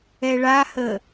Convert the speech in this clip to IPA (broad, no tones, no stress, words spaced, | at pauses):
ɛɭahə